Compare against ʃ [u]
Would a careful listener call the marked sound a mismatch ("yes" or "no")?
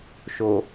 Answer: yes